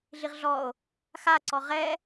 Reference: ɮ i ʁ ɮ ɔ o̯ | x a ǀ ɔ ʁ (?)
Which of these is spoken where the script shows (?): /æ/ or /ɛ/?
ɛ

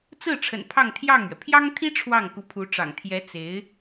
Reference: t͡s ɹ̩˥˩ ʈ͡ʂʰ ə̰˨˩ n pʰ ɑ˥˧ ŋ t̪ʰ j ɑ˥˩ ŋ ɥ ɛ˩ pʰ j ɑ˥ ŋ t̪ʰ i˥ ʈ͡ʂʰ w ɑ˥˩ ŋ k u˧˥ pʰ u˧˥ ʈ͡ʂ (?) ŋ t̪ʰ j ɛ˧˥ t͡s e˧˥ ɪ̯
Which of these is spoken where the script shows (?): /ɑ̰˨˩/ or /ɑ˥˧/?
ɑ̰˨˩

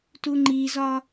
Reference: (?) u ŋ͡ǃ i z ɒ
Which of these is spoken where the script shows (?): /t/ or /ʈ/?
t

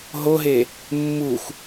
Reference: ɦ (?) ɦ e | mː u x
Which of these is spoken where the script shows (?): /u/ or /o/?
o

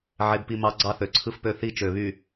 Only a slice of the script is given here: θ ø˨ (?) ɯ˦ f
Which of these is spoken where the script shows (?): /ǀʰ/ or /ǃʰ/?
ǀʰ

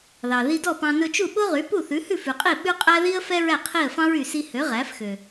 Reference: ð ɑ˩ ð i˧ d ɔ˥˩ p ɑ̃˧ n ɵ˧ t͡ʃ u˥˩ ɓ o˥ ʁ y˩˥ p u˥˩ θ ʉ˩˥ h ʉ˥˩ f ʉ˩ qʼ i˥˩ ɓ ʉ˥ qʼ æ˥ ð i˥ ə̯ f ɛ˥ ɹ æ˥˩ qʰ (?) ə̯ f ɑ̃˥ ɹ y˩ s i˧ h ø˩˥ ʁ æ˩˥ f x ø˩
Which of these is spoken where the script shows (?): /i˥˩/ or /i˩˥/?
i˥˩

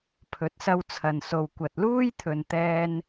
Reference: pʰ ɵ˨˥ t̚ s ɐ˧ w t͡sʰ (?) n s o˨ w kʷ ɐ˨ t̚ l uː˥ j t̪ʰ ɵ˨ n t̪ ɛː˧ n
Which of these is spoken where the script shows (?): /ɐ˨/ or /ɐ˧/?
ɐ˨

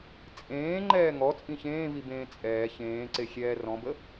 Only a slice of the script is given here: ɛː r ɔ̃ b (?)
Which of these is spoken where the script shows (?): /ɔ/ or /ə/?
ə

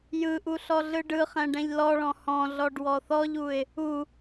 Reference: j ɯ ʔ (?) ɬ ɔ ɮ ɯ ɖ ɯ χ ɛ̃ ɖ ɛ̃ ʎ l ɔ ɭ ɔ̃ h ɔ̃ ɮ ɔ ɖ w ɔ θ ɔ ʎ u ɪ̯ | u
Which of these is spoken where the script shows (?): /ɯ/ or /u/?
u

